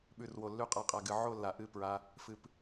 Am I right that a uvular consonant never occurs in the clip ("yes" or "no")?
no